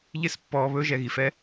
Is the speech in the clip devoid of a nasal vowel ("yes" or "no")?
yes